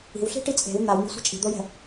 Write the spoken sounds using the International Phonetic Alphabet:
i̤ w ɬ i̤ ʈ i t͡sʼ e̤ w n̪ a w n̪ i̤ sʷ i̤ t͡ʃʼ i̤ d̪ o j ɛ̤

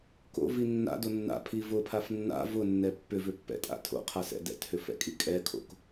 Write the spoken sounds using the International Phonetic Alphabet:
k o̰ v i nː a̰ d o nː a̰ pʰ i v ʊ pʰ a f nː a̰ v ʊ nː ɛ pː ʏ v ʏ pː ɛ̰ tʼ a̰ tʰ o̰ qʰ a s ɛ̰ d ɛ̰ t h ʏ f ɛ̰ kʼ i kʼ ɛ kʰ o̰ k

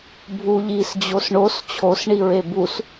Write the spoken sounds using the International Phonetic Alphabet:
bʱ u ʎ i s d͡ʑ o s ɳ o s t͡ɕʰ o s ɳ i ɹ e b u s

